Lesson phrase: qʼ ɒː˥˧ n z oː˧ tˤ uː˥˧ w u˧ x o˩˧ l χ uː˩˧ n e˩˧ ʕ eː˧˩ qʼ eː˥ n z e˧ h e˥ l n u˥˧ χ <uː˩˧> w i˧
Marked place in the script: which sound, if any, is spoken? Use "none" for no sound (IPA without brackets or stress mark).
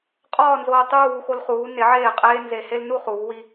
uː˩˧